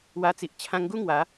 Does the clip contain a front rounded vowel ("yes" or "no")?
no